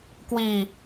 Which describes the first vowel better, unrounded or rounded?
unrounded